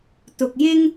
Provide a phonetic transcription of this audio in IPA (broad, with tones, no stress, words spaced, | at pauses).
t̪ʊ˨k̚jɪ˥ŋ